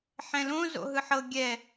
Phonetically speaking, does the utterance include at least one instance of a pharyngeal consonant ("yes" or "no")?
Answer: yes